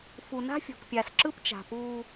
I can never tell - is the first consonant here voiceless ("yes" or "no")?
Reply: yes